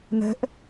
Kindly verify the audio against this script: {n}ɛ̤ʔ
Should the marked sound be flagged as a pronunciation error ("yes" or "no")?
no